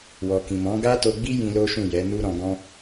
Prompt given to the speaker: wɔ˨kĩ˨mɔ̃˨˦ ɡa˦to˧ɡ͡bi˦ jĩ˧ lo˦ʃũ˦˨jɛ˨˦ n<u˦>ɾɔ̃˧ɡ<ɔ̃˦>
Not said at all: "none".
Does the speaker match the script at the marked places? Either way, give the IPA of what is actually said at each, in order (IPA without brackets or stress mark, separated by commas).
u˦, ɔ̃˦